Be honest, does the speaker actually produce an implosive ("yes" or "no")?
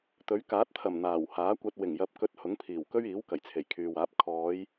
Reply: no